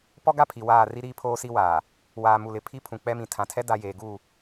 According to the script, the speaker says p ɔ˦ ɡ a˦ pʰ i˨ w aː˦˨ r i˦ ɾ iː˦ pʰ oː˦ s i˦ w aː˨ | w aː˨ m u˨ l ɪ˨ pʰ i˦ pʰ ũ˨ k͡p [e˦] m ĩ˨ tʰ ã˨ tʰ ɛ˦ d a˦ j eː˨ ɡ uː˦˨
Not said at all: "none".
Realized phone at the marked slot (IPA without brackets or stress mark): ɛ˦